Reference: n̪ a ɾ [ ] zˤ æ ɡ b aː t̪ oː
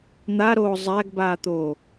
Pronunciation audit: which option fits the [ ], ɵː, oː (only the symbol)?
oː